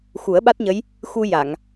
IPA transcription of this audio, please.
x u˨˩˦ ə̯ ɓ a˦˥ t̚ ɲ ə˧˥ j | x u˧ j a˨˩˨ ŋ

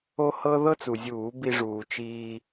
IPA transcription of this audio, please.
o˥ h ɤ˥ ð ɤ˥ t͡s u˩ zʲ uː˧˩˧ b i˧ ʐ uː˩ t͡ʃ iː˧

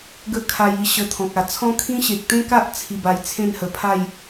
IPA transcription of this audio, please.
ɡ ə˦ kʰ a˧ j i˧ ɕ ə˧ t̪ʰ ɔ̃˨ k̚ a˨˩ t͡sʰ ɔ̃˦ kʰ ĩ˦ ɕ e˨ k̚ t̪ ẽ˦ k a˦ ʔ t͡sʰ i˧ b a˧ j t͡sʰ ẽ˥˧ n h ə˨˩ pʰ a˥˧ j

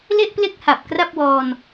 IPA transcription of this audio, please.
l e˥˩ ʔ p l e˥˩ k̚ h a˨˩ p̚ k r a˥˩ p̚ w ɔː˧ n

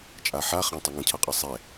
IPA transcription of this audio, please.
t͡ʃʼ a ħ a χ ã tˤ ʌ ŋ ə̃ cʰ ʌ qʼ ʌ sˤ ɛ

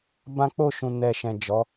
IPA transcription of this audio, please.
b ã˦ k͡p o˦˨ ʃ ũ˨ n ɛ˨ ʃ ɛ̃˨ d͡ʒ ɔ˨˦

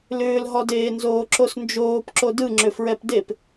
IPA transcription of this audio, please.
l ʏː l ɦ ɔ d eː n z oː ǁ o s n d͡ʒ oː p ǁ o d ɯ ŋ͡ǁ ʏ f ɹ ɛ p d e p

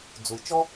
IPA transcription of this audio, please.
d͡z u˩ j t͡ʃ ɔ˥

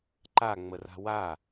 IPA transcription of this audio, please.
ǃ a ŋ͡m ə r a̤ w a

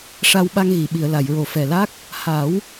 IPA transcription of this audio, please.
ʂ a˧ w ɓ a˧ ŋ ɣ i˨˩˨ ɓ i˨˩˨ ə̯ l a˨˩˨ j ɹ o˨˩ f ɛ˨˩ l a˦˥ k̚ | h a˨˩˦ w

